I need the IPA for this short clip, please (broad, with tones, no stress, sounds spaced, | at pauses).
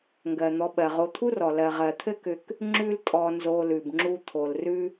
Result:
ŋ ɡ ɜ˩ n̪ ɔ˨ ɓ ɜ˩ ʁ o˨ t̪ʰ u˥ r ɔ˩ l ɜ˩ ʁ ɜ˩ t̪ʰ ɘ˥ k ʏ˨ k | ŋ͡ǁ ʉ˦ l tʼ ɔ˨ n z o˨ l ʉ˩ b ŋ͡ǁ u˦ t̪ʰ o˩ l r ʉ˥